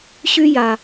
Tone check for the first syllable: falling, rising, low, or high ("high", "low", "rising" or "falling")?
high